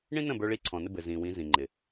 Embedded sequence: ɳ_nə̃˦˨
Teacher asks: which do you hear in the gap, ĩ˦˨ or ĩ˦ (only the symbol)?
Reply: ĩ˦